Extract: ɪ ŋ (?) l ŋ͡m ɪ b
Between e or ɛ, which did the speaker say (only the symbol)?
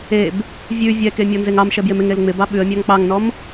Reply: e